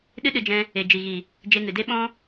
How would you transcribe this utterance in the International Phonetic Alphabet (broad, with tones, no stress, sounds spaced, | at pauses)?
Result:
ɗ ɨ˦ ɗ ɨ˧ d͡ʒ ɛ̃˧ | e˨ d͡ʒ i˨ ɣ i˨ | d͡ʒ e˧ ŋ ɨ˨ d e˦ ɓ ɔ̃˦